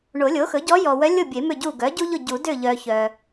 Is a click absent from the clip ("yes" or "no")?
yes